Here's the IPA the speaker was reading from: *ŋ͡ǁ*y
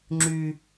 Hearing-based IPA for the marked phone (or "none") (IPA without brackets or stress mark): ŋ͡ǁ